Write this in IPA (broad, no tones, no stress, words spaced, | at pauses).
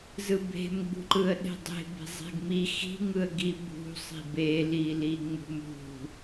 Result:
zɯbe̤mɡ͡bṳǃɯə̯ ɗe̤dˤe̤ be̤zˤe̤ɡmi xi̤ŋɯə̯ɡi bṳsˤi̤ beliliŋ͡mṳ mṳ